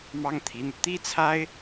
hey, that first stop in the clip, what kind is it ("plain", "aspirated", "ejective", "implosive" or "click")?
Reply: aspirated